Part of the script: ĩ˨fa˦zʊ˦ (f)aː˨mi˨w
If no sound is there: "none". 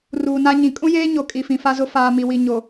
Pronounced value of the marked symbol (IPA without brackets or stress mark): f